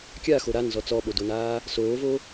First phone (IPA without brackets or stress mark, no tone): kʲ